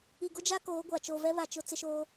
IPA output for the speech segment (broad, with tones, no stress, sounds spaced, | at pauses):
i˨ ɡ ʊ˦ d͡ʒ a˦ k oː˨˦ ɡʷ a˨ t͡ʃ o˨ v ɛ˦ β a˨ t͡ʃ ʊ˨˦ t͡s ɪ˦ ʃ oː˦